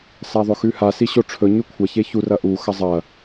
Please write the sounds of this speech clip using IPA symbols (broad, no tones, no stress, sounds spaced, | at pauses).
s a ðˤ ɵ x ʉ h a s i ɕ o ʈ͡ʂʰ ɵ ɲ ʉ kʷʰ a ç e ç u r ɐ ʔ u x ɐ zˤ ɐ